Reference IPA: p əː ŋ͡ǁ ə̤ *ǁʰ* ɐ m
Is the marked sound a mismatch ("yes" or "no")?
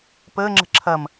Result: no